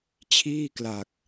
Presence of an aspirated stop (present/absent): present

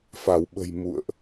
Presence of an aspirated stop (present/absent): absent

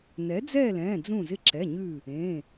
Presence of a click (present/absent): present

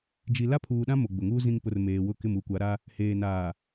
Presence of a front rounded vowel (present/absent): absent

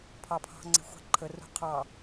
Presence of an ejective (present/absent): absent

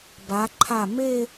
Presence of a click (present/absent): present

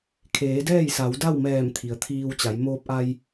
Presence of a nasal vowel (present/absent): absent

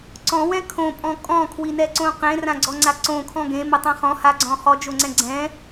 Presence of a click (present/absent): present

